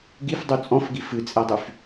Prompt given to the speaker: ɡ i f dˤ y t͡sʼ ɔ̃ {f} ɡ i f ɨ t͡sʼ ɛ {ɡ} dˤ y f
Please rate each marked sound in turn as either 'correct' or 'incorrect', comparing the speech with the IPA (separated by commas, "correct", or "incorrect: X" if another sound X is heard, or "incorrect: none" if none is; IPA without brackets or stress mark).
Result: correct, incorrect: none